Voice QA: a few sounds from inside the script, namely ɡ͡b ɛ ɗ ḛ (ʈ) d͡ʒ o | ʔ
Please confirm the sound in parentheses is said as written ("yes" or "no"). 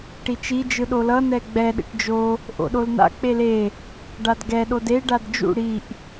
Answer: yes